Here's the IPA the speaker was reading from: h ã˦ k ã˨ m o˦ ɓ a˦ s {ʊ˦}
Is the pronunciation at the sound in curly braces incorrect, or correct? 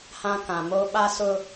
correct